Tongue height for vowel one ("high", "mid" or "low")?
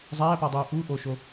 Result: low